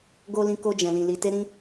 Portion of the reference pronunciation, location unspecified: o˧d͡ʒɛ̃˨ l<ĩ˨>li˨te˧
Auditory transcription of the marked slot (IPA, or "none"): ĩ˨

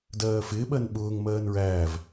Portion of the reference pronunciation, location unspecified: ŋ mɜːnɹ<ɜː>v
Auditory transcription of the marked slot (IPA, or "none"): æː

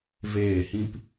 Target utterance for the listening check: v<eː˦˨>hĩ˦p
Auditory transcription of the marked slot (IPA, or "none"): eː˦˨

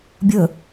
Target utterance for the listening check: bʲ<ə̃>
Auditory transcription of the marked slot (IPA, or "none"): ə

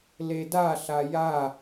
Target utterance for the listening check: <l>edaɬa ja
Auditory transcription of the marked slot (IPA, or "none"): l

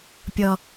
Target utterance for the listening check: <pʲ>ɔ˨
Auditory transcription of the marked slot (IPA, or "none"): pʲ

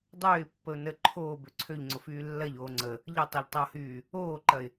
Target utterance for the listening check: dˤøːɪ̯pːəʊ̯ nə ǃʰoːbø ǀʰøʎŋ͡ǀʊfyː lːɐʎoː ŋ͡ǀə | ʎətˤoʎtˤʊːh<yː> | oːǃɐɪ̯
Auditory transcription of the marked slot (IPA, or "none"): yː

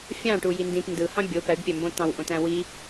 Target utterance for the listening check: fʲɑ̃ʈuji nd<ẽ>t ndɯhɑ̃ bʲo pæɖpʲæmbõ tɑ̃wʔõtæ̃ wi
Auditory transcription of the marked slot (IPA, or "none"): ĩ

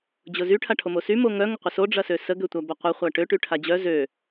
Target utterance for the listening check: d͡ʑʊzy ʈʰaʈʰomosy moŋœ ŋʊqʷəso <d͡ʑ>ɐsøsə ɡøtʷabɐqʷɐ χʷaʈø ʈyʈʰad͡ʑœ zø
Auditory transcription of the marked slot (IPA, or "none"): ɖ͡ʐ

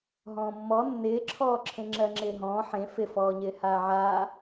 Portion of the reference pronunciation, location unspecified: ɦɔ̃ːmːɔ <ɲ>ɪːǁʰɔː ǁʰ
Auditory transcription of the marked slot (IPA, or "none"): nː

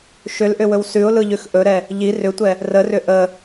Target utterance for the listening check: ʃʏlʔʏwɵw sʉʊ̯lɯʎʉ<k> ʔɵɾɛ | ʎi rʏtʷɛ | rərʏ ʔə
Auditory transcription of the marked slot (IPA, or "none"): x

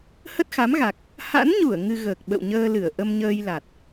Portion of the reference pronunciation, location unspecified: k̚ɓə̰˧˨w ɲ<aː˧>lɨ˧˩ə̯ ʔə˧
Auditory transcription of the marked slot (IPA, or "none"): əː˧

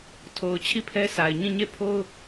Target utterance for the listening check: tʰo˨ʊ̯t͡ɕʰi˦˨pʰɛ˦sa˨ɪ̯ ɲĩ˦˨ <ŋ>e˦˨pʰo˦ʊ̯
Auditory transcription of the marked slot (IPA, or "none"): ɲ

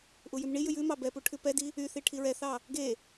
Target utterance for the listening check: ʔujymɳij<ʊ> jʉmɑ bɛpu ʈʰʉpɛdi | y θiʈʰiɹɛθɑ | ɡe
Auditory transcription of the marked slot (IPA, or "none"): ʉ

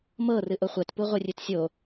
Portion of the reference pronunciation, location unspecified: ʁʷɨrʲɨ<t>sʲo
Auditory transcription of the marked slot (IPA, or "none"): t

